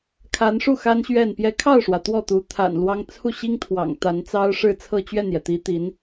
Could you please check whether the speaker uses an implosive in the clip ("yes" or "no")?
no